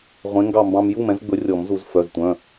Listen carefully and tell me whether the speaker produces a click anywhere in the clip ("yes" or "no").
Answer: no